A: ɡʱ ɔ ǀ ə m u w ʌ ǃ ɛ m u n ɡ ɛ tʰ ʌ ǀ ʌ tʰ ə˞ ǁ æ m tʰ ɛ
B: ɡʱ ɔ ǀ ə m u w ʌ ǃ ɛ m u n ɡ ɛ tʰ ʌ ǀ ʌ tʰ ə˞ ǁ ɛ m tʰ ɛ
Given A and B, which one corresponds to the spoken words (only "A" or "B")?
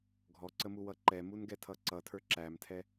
A